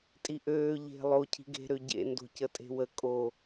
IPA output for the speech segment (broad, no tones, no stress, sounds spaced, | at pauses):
tʼ i ʔ øː ʎ e̤ lˠ o cʰ i̤ ɡ e̤ ɾ ø ɟ ḛ n d o̤ c ə tʼ e̤ w ə kʼ o